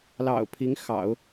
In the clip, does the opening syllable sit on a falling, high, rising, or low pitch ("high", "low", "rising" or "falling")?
low